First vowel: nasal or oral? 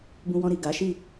nasal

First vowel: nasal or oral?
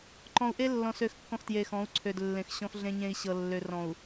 nasal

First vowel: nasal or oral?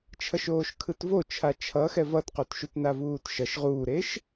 oral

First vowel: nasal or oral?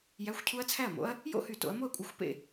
oral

